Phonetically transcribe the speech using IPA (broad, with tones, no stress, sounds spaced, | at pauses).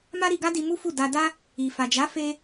m a˦ ɾ i˧ ɡ a˦ d i˧ m u˦ f u˦˨ d a˧ d a˦ | i˨ f a˨ d͡ʒ a˨˦ f e˦